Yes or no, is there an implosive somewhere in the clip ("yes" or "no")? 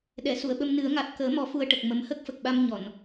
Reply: yes